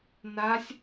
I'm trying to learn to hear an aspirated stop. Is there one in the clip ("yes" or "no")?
no